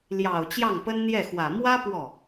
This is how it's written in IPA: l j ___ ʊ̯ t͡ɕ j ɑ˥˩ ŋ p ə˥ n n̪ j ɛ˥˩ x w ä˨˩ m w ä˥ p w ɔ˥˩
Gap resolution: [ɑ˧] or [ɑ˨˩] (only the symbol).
ɑ˨˩